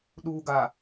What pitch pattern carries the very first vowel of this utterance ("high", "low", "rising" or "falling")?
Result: low